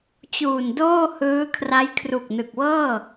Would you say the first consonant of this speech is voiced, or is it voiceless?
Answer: voiceless